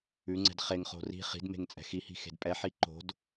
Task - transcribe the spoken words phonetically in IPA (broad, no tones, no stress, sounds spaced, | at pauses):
ʉ ŋ͡ǀ ɛ̤ d χ e ŋ χ o̤ r i̤ χ i̤ d m e̤ ŋ t͡sʼ ɛ̤ x i h i̤ x e̤ d pʼ ɛ ħ i ǃ o̤ d